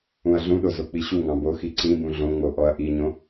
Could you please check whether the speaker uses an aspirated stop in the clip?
no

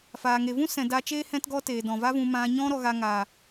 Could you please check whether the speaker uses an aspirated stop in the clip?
no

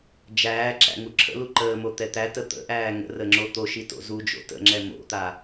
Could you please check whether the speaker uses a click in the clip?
yes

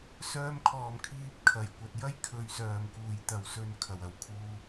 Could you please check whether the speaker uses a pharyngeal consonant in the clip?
no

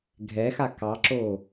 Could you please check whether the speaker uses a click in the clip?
yes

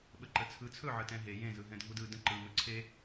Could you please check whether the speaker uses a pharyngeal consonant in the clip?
yes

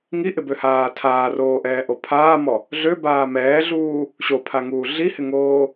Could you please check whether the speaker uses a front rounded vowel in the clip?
yes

